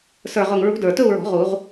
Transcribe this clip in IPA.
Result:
s ə˞˨˩ ʁ ʊ˨˩ ŋ ɹ ṳ˨˥ d ə˞˨˩ t ɵ˥˧ u̯ ɹ ɔ̤˨˩˦ ʁ u˨˩˦ ʁ

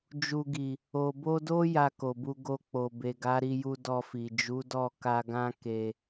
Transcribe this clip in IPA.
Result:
d͡ʒ u˨ ɡ i˨ | o˨ b o˧ d o˦ j a˧ k o˨ b u˧ ɡ o˧ k͡p o˨ b e˨ ɡ a˨˦ ɾ i˧ j u˧ d ɔ˧ f i˨ d͡ʒ u˨˦ d ɔ˦˨ k a˧ ɡ ã˦ k e˧

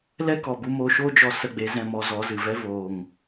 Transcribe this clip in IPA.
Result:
l ɛ˦ k ɔ˨ b u˧ m oː˧ ʃ oː˦ d͡ʒ ɔ˧ s ə˦˨ ɡ͡b e˧ z ɛ̃˦˨ m ɔ˧ z ɔ˨˦ z ɨ˨ v ɛ˦ v oː˨ ŋ

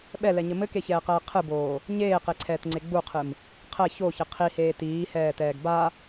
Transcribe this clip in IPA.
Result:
ɓ ɛ l ɛ ɲ ɘ m ɘ k e ç ɛː q ɛː qʰ ɨ b oː | ɲ eː q e ǀʰ ɛː t ŋ͡ǀ e ɡ͡b u qʰ ɨ m | qʰ ɛ ç o ç ɘ qʰ i h eː t iː h ɛː t ɛː ɡ b a

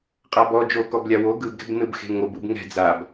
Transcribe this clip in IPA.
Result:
qʼ a b ɔ d͡ʒ o k ɔ b lʲ a w o ɡ ɯ b ɡ ɛ̤ b n ɯ b x e̤ ŋ o b ɯ b ŋ ɛ̤ d͡z a b

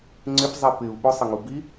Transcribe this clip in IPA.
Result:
ŋ͡ǀ ɪ p zˤ i p ɪ u̯ ɓ ʊ sˤ ɪ ŋ u b i

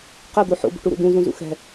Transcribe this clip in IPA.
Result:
q ɛ d̪ o ħ o̰ b ṳ ʈ u ɾ ṵ d ũ z ũ z ṵ x ɛ̤

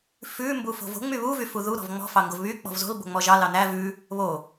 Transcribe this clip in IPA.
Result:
f ʉ m b u f o̤ v o̤ ŋ͡m y β u v y f u ð u ɾ ɔ̤ v ŋ͡m ɔ̤ f ɑ ŋ ɡ o v β y k͡p ɔ̤ v z o̤ l b o̤ ŋ͡m ɔ ʒ ɑ l ɑ n æ v ʉ | β o

